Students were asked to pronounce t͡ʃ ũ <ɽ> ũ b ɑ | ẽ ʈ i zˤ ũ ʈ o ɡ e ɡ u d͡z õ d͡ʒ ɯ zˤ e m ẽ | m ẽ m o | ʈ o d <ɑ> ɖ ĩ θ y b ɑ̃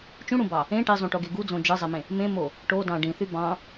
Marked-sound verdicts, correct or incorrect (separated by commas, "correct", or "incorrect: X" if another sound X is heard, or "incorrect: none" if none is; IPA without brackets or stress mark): correct, incorrect: ɑ̃